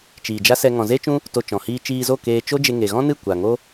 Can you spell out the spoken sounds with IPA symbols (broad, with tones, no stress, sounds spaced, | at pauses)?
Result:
t͡ʃ iː˨ d͡ʒ a˦ s ɛ˧ ŋ ɔ̃˨ z e˦ t͡ʃ ũ˦ | t o˧ t͡ʃ ɔ̃˨ h iː˧ t͡ʃ iː˧ z o˦˨ k eː˧ t͡ʃ o˦ d͡ʒ e˧ ŋ e˨ ɣ ɔ̃˦ n ɨ˦˨ kʷ a˨ ŋ o˦